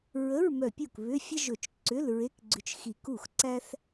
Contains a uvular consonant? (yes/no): no